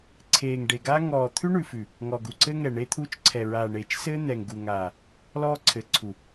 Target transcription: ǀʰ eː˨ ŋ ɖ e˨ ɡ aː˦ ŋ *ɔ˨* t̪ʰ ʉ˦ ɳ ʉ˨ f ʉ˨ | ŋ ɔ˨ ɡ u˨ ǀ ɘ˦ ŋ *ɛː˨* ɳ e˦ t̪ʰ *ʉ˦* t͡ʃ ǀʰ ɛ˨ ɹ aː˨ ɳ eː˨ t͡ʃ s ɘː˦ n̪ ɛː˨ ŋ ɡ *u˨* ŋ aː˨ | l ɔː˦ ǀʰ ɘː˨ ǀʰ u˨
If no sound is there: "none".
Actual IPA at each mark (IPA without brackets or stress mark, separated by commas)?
ɔː˨, ɛ˨, u˦, u˨